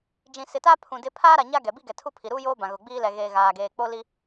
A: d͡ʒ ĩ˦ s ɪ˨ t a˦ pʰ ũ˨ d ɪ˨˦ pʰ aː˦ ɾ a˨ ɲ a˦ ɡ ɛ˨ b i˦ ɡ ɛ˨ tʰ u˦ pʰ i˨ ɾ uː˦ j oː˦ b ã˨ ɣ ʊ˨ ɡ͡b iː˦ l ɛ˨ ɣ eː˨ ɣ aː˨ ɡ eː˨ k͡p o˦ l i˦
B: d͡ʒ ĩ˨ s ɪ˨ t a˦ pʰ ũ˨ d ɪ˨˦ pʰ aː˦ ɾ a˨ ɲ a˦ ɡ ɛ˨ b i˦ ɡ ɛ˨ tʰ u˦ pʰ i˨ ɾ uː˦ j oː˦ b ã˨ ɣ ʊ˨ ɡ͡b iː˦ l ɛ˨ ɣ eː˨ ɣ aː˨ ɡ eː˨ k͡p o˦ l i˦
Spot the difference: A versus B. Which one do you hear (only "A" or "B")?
B